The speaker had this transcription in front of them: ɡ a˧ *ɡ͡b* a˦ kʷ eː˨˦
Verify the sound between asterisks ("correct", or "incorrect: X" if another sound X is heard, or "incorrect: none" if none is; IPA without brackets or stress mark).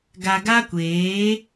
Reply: incorrect: ɡ